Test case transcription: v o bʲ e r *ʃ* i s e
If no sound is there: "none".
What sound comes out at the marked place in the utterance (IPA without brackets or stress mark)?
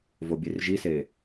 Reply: ʒ